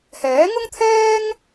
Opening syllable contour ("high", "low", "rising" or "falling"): rising